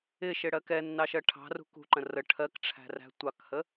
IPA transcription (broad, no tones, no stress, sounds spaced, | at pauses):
ɪ ʃ ɪ ɽ ɜ k ɛ nː ɑ ʃ ɜ ʈʰ ɑ̤ r ṳ k ṳ ǃ ə̃ r ə ʈʰ ɜ k ʈ͡ʂʰ æ̤ r æ̤ tʷ ɑ k h ə